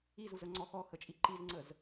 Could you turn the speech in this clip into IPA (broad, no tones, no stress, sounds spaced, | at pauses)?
i z u z ə ŋ͡ǀ ɔ x ɔ x ə t͡ʃʼ i ǃ i z ŋ͡ǀ ə z